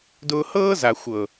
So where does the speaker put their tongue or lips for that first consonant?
tongue tip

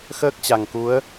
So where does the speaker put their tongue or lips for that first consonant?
velum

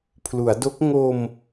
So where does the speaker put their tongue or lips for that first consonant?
lips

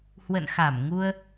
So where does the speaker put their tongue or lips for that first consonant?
throat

